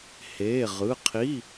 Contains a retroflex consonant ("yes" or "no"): no